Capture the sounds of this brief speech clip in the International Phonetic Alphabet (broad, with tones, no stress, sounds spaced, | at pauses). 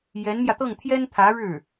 j ɛ˧˥ n m j ä˧ t̪ ɤ˥˩ ŋ t̪ʰ j ɛ˥ n t̪ʰ ä˧˥ ɻ ɻ̩˥˩